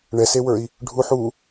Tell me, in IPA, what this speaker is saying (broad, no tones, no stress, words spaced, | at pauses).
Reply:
ɳɛsewə˞i̯ | ɖʱuħ u